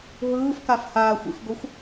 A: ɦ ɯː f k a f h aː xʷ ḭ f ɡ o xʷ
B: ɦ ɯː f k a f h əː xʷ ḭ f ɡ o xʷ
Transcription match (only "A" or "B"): A